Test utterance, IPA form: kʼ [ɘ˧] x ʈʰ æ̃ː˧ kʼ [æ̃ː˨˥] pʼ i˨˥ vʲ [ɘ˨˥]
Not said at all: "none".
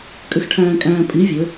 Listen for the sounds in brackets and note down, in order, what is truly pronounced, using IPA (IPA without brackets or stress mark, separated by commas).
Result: ɘ˧, æ̃ː˧, ɘ˨˥